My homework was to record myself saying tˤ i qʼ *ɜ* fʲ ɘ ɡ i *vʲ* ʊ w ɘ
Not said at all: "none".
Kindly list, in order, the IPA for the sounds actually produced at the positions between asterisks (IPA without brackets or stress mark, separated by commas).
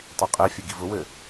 ɛ, v